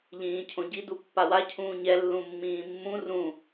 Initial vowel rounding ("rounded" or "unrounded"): unrounded